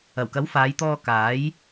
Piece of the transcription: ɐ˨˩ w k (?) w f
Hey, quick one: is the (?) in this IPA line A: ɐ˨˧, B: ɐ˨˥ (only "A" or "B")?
B